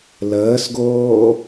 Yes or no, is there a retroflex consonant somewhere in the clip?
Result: no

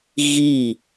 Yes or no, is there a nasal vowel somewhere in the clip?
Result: no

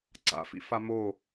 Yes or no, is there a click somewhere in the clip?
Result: yes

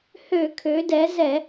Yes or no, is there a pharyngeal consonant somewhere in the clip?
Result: no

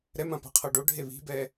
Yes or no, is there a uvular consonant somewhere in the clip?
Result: yes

